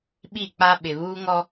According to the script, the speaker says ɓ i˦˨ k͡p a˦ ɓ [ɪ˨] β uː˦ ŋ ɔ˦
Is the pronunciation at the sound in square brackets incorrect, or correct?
correct